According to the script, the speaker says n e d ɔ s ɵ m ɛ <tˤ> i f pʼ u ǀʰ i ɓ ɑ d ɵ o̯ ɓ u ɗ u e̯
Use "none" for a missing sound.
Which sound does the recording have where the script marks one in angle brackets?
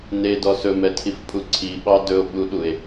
tʰ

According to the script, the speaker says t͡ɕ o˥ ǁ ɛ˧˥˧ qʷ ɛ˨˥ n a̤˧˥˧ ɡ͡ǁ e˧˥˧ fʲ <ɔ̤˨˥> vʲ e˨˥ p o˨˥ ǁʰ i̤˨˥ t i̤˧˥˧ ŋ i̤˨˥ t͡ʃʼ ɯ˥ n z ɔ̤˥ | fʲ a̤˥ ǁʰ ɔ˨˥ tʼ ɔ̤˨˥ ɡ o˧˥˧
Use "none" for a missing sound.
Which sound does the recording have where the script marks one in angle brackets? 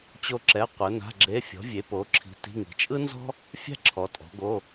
ɔ̤˨˥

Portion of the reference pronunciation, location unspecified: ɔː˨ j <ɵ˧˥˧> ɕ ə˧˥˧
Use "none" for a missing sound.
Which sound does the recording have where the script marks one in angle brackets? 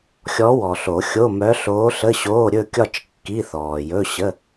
ɵ˧˥˧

